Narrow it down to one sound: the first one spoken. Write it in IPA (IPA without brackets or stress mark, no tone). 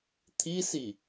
t̪ʰ